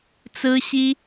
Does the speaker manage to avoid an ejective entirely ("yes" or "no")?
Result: yes